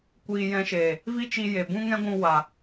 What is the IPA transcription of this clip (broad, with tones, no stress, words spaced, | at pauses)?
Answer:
kʷiː˧jɛ̃˧ʃe˨ | vi˦t͡ʃi˧je˨ bũ˦ŋɛ̃˦ɡʷũ˧ wa˨